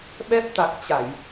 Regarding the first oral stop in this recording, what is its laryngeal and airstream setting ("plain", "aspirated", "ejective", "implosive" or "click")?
implosive